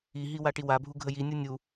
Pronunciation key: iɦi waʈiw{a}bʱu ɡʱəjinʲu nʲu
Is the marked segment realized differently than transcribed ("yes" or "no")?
no